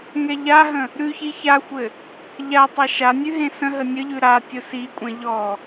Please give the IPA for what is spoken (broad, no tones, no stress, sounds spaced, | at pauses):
ŋ ɛ ʎ a ɦ ə̃ | ɾ ʉ ç i ç a xʷ ɘ | ʎ a tˤ a ʃ a nʲ ʉ ɦ ẽ s ə̃ ɦ ə nʲ ə ʎ ʉ ɾ a tʲ ʊ s i kʷʼ ɛ̃ ʎ ɔ